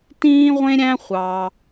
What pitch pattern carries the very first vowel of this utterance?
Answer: high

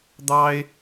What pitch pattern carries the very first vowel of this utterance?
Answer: high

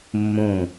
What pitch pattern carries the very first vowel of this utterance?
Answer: low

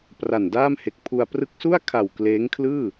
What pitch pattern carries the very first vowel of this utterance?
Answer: low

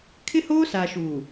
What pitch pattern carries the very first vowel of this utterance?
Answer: high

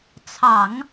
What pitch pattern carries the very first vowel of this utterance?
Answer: low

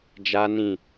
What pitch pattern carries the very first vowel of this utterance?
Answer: high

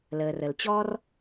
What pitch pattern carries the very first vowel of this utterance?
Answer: low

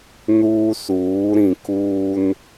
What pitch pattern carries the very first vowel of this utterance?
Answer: high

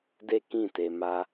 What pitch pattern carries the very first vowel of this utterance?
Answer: falling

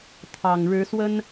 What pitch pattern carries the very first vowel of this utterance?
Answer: low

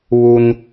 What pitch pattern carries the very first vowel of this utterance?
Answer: low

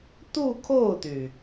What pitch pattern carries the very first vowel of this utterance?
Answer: falling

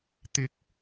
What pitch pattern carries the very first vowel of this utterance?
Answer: rising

